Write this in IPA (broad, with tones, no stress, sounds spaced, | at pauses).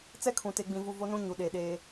t͡s ɛ˦ kʰ ũ˨ t e˦ ɡ͡b ĩ˦ v u˦ v o˦ n ũ˦ ɲ u˨ ɗ eː˨ ɗ eː˦